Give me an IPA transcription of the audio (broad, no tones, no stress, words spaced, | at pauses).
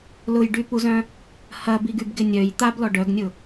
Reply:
lʊjɖypuzœ̃ | hɐbiɡybɡɪ nʲœj t̪ablɔ ɖœɡnʲʊ